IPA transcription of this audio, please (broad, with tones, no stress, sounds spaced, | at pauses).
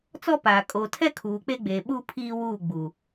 t͡s ɔ˦ p aː˨ kʼ oː˨ tʰ ɛ˦ kʰ uː˨ k͡p e˦ ɡ͡b eː˨ ɓ uː˦ pʰ iː˦ w uː˦˨ ɡ͡b u˨